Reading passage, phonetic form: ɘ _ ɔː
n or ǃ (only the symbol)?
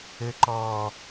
ǃ